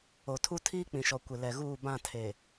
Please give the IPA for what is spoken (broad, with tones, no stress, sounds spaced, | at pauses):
o˨ tʰ u˦ tʰ iː˦ k͡p ĩ˨ ʃ ɔ˨ kʷ ɪ˨ l ɛ˨ ɣ uː˦˨ b ã˦˨ tʰ e˨